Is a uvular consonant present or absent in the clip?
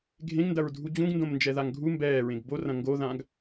absent